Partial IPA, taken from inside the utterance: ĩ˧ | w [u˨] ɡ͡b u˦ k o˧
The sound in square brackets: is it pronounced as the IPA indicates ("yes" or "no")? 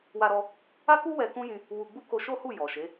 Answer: no